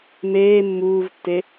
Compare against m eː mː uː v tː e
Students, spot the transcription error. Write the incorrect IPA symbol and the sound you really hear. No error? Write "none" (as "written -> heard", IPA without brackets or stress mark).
none